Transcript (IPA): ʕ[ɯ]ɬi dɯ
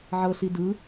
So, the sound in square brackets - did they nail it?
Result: no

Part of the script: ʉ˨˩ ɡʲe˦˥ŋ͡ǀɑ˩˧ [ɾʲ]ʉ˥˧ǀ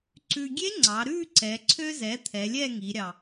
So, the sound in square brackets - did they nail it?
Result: no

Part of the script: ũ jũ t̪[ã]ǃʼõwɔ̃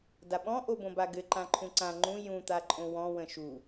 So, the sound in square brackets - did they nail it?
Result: no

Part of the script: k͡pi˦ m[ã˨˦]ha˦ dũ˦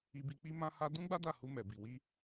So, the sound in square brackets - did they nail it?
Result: no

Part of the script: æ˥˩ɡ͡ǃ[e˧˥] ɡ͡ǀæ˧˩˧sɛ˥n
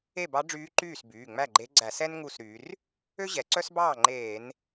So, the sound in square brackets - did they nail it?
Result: yes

